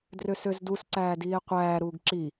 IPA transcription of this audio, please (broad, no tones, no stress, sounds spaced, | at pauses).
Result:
d r ø s ø z d u s ǀ æː d iː e̯ qʷ æː ɾ uː ɡ ǁ i